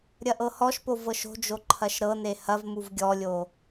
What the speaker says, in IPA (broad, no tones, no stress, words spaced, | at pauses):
ɾʲɐʔɤhɔʃpo vɤʃo̤d͡ʒo ǃʰɐʃɾɤne hɐvmuv ɡʲɔlʲo